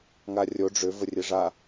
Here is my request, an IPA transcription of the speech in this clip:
ŋarʲo ɖ͡ʐʏ vərʲeʐa

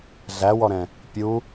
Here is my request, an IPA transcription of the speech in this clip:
ɮæwɔɾɛ̃ | pʲu

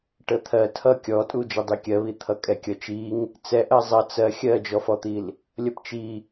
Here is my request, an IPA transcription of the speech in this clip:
ʈət̪ʰɜ tʰʌ kʲɔtʼu d͡ʒʌdˤikʲɜβi t̪ʰʌkʼɛkʲʌt͡ʃiŋ | t͡sɛʔɜ zˤʌ t͡sɜ xʲɜd͡ʒɔfɔt̪il | lʲʌpt͡ʃi

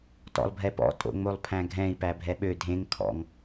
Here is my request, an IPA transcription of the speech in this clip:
tɔ̰lˠbʱɛpɔ̰ tʼo̰ŋ͡molˠpʰæ̃ɡʱɛ̃i̯ pæbʱɛɓø dʱẽŋ kʰɔ̰ŋ

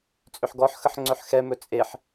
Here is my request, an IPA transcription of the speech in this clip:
t͡sʼʏħɡɔħxəħ ŋ͡ǀœħxɛmɵ t͡sʼeħ

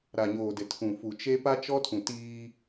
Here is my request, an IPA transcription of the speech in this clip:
ɾa˨ɲoː˨dɪ˨tʰũ˨ fu˨t͡ʃe˦ pa˦t͡ʃɔ˦tʰũ˨ tiː˦

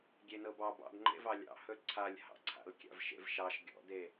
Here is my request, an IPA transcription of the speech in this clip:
ɡʲenɤbɑ bɑ̰dŋ͡ǃḛvɑ lʲɑ̰hɵ ǀʰalʲhɑ̰ǀʰa̰l kʲa̰vʃḛvʃɑʃ ɡʲɔ̰de

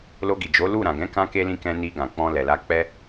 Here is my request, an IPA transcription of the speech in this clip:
lo˧ɡi˨ d͡ʒo˨˦lu˦˨ɾã˨ ɡɛ̃˨˦kã˧ke˧lĩ˧ kɛ̃˧ni˧ ɡã˨k͡pɔ̃˧lɛ˨la˧ k͡pɛ˧

